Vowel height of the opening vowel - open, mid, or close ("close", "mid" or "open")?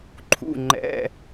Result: close